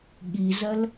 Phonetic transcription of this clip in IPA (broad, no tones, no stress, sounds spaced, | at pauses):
ɠ i z ɜ l